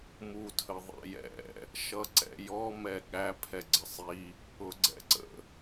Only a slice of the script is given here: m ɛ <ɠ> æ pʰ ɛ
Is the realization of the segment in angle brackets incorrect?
no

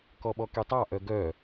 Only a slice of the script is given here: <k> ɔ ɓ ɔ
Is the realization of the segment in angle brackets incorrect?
no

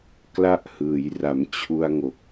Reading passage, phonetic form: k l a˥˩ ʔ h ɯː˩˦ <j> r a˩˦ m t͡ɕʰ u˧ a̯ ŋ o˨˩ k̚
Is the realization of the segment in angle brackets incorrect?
no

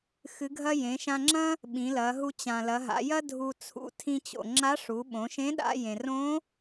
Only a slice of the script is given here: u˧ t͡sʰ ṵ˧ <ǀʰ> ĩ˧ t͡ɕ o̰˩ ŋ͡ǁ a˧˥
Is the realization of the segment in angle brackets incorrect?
yes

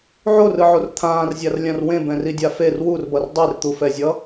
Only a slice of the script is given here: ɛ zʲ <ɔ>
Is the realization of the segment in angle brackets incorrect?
yes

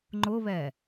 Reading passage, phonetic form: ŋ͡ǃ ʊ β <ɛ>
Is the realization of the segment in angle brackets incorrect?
no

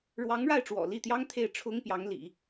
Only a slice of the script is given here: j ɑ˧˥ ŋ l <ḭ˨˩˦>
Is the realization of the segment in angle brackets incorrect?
no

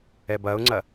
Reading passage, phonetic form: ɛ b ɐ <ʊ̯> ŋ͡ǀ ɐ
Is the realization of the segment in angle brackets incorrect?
no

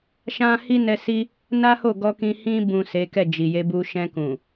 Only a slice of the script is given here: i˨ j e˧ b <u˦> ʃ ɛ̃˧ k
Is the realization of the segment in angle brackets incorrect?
yes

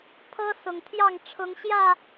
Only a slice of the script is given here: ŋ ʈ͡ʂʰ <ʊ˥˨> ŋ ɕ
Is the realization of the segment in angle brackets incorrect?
yes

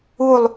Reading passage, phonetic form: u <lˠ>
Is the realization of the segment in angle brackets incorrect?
no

